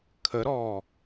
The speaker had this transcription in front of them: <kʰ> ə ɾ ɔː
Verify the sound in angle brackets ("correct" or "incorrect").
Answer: correct